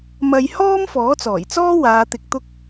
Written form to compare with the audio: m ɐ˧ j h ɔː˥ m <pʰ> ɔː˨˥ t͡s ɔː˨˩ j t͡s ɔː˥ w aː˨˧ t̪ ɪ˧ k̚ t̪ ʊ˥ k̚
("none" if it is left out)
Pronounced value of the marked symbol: f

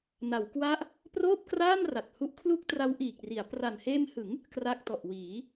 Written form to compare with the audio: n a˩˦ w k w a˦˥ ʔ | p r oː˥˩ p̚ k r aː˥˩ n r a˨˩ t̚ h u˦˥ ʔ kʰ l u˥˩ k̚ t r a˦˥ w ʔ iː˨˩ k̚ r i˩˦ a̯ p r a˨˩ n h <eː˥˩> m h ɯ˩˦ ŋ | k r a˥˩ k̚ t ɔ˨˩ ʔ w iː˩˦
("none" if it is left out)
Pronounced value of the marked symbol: eː˧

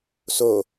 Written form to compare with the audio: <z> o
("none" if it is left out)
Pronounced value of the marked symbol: s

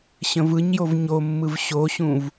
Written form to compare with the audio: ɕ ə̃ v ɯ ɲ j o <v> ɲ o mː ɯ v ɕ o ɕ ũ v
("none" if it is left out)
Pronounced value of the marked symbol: v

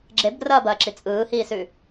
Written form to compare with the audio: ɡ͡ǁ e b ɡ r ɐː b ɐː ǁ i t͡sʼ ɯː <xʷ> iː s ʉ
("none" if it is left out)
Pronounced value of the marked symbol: h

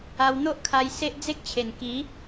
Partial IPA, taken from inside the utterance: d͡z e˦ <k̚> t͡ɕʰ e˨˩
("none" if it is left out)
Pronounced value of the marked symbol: k̚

